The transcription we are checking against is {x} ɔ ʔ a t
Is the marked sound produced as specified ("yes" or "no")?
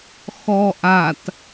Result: yes